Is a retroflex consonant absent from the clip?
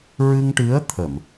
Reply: no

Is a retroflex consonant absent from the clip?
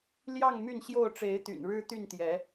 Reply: no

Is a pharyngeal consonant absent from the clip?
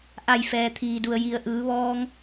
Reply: yes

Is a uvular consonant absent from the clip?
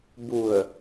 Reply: yes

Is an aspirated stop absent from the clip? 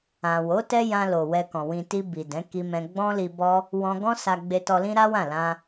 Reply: yes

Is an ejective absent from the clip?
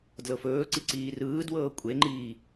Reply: no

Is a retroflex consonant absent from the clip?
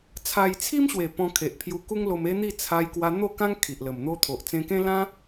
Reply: yes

